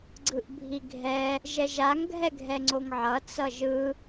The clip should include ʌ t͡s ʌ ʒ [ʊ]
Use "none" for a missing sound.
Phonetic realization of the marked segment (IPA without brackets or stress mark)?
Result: ɯ